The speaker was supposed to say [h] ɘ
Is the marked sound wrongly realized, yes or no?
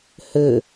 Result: no